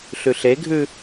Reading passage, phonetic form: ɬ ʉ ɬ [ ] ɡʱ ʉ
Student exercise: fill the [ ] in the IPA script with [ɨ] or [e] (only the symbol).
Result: e